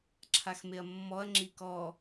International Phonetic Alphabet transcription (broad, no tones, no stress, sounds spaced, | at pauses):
ǁʰ a x m e ɐ̯ mː ɔ ɐ̯ ŋ͡ǁ i k ɔ